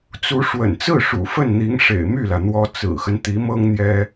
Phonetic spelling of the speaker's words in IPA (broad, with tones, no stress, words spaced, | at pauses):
t͡su˧˥ ʂwə̰˨˩nt͡sɹ̩˥˩ ʂṵ˨˩fə˥˩nn̪i˧˥ŋʂḛ˨˩ɪ̯ my˥˩lä˩n̪wɔ˧˥ t͡sɹ̩˨˩xə˦n t̪i˧˥mɤ˥ŋ n̪jɛ˥